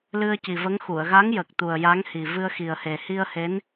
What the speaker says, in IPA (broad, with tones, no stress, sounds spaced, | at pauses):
l ɨ˧ ə̯ c i˨˩ v ə˧˥ ŋ x u˨˩˨ ə̯ ɣ a˧˥ ŋ j ə˨˩ k̚ t̪ u˨˩ ə̯ j a˧˥ ŋ h i˨˩ v ɨ˧ ə̯ x i˨˩ ə̯ h e˨˩ h i˧ ə̯ h e˧˥ n